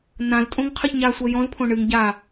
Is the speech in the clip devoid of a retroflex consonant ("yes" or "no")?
no